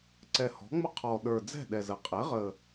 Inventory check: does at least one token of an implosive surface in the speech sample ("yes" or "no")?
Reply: yes